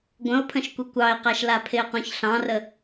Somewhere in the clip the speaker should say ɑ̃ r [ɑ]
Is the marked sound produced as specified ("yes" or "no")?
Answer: no